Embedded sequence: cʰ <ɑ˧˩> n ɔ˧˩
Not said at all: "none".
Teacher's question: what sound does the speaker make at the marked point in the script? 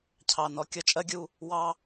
ɑ˧˩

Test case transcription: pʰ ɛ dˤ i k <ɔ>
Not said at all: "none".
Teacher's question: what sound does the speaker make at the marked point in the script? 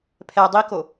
o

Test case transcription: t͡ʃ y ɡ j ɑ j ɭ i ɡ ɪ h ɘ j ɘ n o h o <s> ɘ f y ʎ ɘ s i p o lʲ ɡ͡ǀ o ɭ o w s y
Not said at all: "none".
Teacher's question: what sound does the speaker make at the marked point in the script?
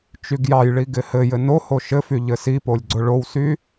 ʃ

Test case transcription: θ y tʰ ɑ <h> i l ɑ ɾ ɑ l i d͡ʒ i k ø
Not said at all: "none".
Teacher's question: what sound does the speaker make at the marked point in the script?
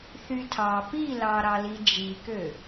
p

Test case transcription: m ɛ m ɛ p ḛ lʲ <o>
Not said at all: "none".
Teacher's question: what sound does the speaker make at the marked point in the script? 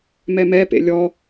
ɔ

